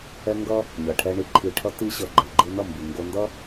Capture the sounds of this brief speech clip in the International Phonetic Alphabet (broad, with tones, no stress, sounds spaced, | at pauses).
ɛ˧ ŋ ɡ ʌ˦ | ɲ ʌ˨ ʈʰ ɛ˧ ɳ i˧ ǃʰ i˧ ʈʰ ʌ˦ t i˦ ɕ ʌ˧ ɡ͡ǃ ɛ˨ ɡ͡ǃ ɯ˧ n ʌ˦˨ m b i˨ ŋ ɡ o˧ n d ʌ˦